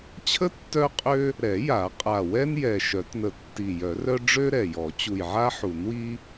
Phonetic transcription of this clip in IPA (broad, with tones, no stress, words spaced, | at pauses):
t͡ɕʰə˥ tːœ˥qʼø˥ | ɾɛ˨˩˦ja˨˩˦ qʼa˨˩wɛ˥n jɛ˨˩ ʃœ˨˩˦tnə˨˩tːi˨˩ jœ˨˩˦rœ˥ ɖ͡ʐø˥ɾɛ˨˩jɔ˨˩˦ t͡ɕu˨˩jʕa˥ħu˨˩˦n wi˥